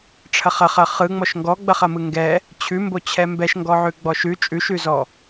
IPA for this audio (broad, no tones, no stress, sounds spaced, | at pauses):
ʈ͡ʂʰ ɐ χ ɐ χ ɐ χ ɯ ŋ͡m ɔ ʃ ŋ ɡ ɔ ɡ͡b ɐ χ ɐ m ɯ ŋ ɡ ɛ | t͡ɕʰ ʉ m b o t͡ɕʰ ɛ m b ɛ ʃ ŋ ɡ ɔ ʕ ʉ ɡ͡b ɔ ʃ ʉ t͡ʃʼ ʉ ʃ ʉ z ɔ